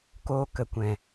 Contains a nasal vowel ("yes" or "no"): yes